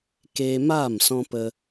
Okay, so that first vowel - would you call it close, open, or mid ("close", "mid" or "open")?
mid